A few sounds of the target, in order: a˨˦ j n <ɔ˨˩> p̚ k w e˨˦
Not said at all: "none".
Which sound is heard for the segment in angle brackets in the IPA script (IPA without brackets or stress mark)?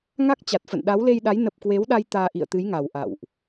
ə˨˩